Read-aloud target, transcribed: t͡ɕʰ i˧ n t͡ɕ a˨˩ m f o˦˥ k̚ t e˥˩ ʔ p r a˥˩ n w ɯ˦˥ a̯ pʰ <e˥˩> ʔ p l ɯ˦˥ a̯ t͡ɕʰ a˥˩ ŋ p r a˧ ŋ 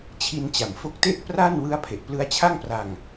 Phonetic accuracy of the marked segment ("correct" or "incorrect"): incorrect